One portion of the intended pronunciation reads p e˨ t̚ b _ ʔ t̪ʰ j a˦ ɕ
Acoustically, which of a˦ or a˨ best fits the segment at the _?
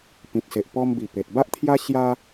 a˦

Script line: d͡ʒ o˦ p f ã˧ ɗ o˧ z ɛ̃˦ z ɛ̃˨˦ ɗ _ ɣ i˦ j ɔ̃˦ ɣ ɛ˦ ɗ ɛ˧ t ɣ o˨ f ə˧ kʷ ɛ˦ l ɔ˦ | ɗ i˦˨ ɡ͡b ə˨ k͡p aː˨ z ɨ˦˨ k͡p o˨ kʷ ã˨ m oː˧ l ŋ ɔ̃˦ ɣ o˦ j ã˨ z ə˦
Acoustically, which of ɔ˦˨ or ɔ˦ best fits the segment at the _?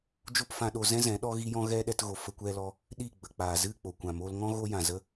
ɔ˦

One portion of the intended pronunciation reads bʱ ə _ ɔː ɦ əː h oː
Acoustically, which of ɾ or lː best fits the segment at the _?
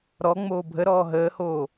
ɾ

